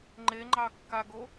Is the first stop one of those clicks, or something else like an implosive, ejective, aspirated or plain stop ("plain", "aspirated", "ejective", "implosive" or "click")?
click